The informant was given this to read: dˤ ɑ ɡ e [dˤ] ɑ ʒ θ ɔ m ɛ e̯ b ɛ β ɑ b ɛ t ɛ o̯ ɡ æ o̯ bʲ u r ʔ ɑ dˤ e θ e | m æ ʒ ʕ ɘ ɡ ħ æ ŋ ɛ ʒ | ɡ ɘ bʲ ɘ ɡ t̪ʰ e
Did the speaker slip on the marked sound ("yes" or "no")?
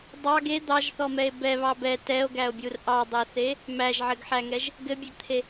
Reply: yes